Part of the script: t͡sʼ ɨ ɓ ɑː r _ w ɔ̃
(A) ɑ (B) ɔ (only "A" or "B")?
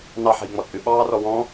B